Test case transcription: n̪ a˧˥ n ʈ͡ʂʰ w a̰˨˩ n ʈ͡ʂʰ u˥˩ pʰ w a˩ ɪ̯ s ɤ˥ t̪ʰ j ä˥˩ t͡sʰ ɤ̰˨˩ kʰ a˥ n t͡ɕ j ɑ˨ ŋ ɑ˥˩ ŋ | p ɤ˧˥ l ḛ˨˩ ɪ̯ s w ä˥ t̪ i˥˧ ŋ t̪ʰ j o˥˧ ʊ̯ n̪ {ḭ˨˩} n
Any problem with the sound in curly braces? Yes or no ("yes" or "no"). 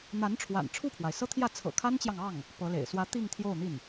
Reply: yes